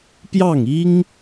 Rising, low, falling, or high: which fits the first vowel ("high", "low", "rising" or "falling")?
falling